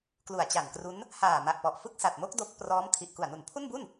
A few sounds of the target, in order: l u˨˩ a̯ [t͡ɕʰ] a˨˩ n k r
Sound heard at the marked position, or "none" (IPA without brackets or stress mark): t͡ɕ